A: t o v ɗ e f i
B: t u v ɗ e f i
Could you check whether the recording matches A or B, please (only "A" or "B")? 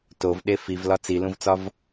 A